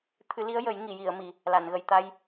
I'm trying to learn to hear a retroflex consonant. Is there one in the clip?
no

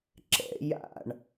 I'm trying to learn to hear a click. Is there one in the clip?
yes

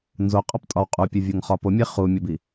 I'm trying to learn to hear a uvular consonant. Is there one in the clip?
yes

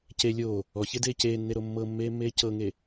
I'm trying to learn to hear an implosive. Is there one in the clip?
no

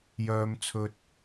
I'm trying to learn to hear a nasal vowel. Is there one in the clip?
no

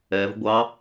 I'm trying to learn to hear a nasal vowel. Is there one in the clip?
no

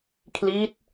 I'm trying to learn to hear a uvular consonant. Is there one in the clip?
no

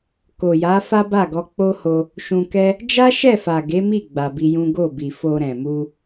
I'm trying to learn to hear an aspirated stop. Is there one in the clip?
no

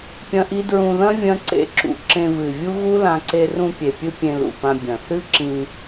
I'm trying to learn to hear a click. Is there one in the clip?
yes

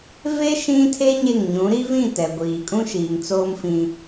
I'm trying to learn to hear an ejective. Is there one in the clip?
yes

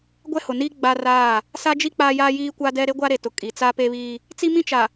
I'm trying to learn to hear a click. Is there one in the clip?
no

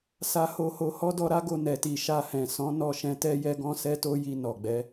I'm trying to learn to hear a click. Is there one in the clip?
no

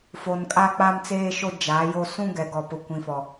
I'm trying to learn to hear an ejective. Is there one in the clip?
yes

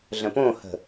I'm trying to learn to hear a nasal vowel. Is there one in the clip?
yes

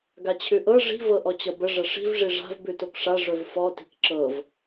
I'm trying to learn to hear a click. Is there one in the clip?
yes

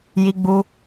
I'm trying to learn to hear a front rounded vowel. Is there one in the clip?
no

